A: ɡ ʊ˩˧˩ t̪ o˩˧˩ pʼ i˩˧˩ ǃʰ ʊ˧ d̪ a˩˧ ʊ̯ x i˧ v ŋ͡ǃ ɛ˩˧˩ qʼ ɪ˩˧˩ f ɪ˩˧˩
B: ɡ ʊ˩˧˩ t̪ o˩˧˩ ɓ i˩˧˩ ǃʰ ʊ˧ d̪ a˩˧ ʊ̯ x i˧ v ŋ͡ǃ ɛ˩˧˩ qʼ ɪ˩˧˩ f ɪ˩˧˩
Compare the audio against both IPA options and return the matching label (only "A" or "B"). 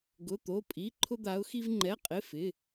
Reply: A